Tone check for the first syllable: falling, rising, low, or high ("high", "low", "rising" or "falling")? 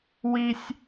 high